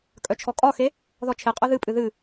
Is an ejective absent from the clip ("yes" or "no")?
no